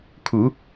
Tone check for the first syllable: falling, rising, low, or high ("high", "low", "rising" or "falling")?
rising